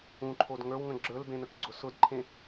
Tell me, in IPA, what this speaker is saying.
ũ ǃʰ o d ŋ ə˞ w ŋ ə̃ ɡ͡ǁ ə˞ l b ẽ n ə k ɡ͡ǀ ʊ s ʊ d ǃʰ ẽ

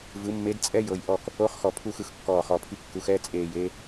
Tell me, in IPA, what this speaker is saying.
v ɯ˩˥ mː e˧˥ d t͡sʼ ɛ˥ j ɤ˨ j ʔ ɔ˦˨ k | o˧˥ χ x ɔ˨ pʰ u˦˨ x ɯ˨ x kː ɔː˦˨ χ ɔ˦˨ pʰ i˥ kː u˧˥ x ɛ˥ t͡sʼ eː˦˨ j e˥

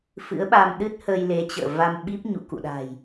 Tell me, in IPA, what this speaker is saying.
f ɨ̰˧˥ ə̯ ɓ a˧ m ɗ ɨ˦˥ t̚ h ə˧ j l e˨˦ t͡ɕ ə̰ː˧˨ v a˧ m ɓ i˦˥ p̚ ɲ ṵ˧˨ k ṵ˧˨ ɗ a̤˨˩ j

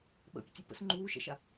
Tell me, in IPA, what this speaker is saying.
ɓ ə̰ pʲ ə tʲ o p ə̰ s ŋ͡ǃ uː ʃ ɛ̰ ʃ a

